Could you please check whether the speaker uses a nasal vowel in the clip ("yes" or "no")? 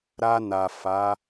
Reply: no